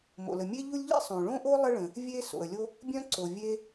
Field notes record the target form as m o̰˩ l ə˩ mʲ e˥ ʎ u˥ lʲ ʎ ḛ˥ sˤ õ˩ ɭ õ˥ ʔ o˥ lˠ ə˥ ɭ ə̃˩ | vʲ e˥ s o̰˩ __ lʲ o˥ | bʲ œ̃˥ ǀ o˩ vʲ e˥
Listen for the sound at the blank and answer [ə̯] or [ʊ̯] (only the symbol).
ə̯